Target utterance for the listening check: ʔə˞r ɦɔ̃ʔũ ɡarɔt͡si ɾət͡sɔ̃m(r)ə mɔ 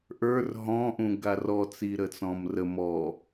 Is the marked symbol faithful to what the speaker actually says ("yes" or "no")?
yes